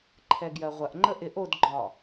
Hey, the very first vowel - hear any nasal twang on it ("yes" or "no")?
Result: no